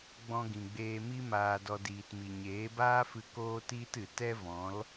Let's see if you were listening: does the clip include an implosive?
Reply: no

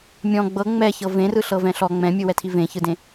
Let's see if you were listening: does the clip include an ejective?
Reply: no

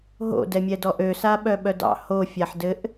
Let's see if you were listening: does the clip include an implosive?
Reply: yes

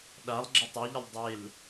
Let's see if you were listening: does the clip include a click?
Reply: yes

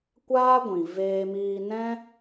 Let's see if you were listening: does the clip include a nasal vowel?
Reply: yes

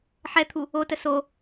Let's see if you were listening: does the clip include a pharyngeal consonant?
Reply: yes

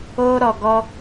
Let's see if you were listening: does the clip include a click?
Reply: no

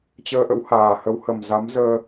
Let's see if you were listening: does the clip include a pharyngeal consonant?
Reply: no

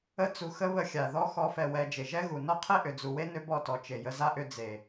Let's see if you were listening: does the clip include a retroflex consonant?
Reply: no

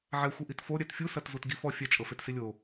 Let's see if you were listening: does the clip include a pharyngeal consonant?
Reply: yes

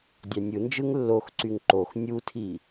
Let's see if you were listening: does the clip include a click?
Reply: yes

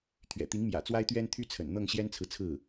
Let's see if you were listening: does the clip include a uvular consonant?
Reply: no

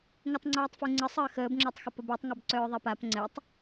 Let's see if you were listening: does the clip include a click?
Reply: yes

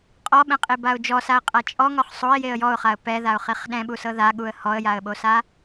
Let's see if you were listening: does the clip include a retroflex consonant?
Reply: no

